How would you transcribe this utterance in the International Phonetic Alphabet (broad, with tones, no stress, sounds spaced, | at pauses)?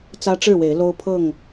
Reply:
t͡s ä˦ ʈ͡ʂ ɻ̩˥˨ w e˨˦ ɪ̯ l o˦ ʊ̯ pʰ ɤ˥˨ ŋ